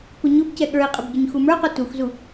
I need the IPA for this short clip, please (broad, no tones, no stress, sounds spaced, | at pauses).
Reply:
p ʊ ɲ ʊ b c ɛ ɠ ə˞ i̯ qʼ ɪ b ɟ ʊ ɲ x u m ə˞ q ə˞ t u x z u